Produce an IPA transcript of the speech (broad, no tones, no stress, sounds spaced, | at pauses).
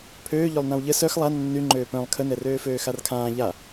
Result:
pʰ øː ʎ ø lˠ n ã w ʎ ə s œ x lˠ a nː y ŋ͡ǃ øː p œ̃ lˠ kʰ ə n ɛ r øː f øː x a r kʰ ãː ʎ a